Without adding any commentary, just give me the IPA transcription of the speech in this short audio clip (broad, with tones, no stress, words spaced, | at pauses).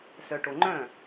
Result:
sœ˨ʈo˨ ŋ͡ǃœ̃˥˨